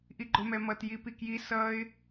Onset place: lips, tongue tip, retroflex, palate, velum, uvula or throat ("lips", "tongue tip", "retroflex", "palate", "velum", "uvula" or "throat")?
throat